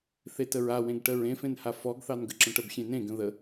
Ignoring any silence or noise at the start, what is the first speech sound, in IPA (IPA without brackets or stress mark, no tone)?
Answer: θ